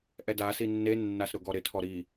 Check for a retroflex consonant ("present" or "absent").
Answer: absent